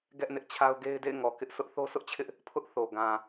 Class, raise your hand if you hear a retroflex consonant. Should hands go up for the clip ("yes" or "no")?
no